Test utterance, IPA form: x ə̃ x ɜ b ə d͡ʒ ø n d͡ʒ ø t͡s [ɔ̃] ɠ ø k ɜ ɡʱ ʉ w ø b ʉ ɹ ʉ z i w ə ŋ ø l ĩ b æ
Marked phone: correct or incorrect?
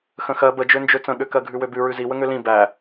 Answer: incorrect